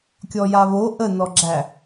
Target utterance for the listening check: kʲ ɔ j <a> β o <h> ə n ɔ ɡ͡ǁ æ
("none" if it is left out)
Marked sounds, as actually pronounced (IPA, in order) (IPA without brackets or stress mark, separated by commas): a, ʔ